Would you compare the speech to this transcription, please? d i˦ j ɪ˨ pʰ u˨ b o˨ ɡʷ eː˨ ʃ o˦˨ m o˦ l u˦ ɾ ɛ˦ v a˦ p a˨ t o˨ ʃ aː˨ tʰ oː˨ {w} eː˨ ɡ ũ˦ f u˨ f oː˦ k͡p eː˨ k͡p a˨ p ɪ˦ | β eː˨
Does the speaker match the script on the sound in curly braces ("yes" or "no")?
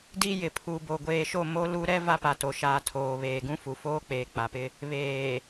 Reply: no